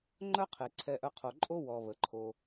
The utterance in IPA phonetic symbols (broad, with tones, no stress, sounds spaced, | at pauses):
ŋ͡ǃ œ˦ qʰ e˨ ǀʰ ɛ˧ ʔ œ˧ qʰ o˨ ǃʼ o˦ w ɔ˨ β ə˨ ǃʰ o˧